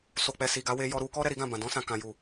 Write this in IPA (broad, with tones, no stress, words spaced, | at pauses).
so˨k͡pɛ˨ si˨ɡa˨˦we˧ jɔ˧ɾu˧kɔ˦ ɾɛ˧ɾi˦ɡã˦˨bã˨ dɔ̃˧sã˨ kã˨ju˨